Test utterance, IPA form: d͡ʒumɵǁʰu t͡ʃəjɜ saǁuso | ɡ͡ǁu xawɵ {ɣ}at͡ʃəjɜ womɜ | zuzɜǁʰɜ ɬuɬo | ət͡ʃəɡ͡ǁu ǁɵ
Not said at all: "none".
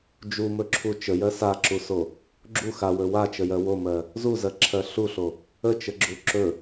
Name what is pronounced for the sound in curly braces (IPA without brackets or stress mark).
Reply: w